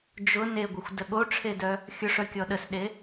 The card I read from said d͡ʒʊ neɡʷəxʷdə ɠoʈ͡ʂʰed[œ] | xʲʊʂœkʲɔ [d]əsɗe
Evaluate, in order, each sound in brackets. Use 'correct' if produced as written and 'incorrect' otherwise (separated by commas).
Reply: correct, incorrect